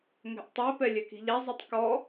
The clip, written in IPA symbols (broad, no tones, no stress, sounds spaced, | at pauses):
ŋ ɛ̤ ʔ tˤ ɛ p ɛ lʲ ɛ k i̤ ʎ a zˤ u tˤ k ɔ